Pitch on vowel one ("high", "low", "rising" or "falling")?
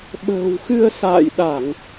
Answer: low